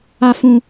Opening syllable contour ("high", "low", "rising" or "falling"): low